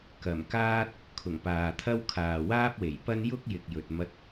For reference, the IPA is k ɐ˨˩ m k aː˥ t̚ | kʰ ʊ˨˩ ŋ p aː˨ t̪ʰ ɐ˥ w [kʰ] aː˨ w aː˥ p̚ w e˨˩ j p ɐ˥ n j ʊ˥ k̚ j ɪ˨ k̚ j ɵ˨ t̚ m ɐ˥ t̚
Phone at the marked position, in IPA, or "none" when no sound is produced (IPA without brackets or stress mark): kʰ